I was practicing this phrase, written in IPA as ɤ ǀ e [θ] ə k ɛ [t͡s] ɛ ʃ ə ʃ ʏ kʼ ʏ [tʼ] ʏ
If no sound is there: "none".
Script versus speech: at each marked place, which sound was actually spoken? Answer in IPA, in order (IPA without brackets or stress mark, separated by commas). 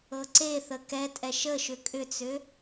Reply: θ, tʼ, t͡s